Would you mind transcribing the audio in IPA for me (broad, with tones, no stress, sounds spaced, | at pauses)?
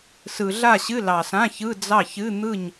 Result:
s ɯ˨ ɮ a˥˨ ɕ ɨ˧˥˧ l ɑ˨ s ã˧˥˧ ç ɯ˧˥˧ d͡z ɑ˥˨ ç ɨ˧˥˧ n̪ ɯ˥˨ ɲ